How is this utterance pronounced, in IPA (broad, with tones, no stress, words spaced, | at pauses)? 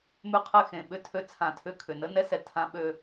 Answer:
mʉ˦qʰɛ˦˨ xẽ˨ɓʏ˦tʰø˦ t͡sʰã˨tʰʏ˦kʰʏ˨ nə˦nɛ˦sɛ˨ tʰã˦ ɓø˦